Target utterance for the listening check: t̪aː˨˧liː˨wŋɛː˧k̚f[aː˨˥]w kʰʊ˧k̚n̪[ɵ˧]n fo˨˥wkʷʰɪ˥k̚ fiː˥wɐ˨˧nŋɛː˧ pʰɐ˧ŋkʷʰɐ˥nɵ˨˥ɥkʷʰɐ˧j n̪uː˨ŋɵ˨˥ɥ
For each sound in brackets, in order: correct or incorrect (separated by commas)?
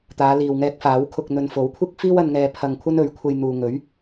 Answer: correct, correct